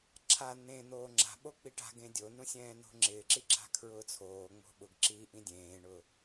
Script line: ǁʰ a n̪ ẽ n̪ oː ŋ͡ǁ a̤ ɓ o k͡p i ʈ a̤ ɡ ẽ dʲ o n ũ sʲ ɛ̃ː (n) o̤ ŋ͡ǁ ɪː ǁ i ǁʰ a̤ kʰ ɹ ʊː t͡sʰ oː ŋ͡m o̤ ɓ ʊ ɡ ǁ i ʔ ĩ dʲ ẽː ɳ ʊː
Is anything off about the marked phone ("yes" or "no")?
no